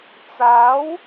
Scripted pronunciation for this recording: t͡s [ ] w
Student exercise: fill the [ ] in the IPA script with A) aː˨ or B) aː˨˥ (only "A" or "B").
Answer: B